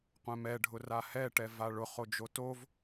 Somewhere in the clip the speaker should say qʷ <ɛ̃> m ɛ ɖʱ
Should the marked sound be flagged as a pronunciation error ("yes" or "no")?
no